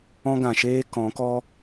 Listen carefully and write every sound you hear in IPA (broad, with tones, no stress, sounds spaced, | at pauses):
ɔ̃˦ ɡ ã˨ ʃ eː˦ k ɔ̃˨˦ k ɔ˦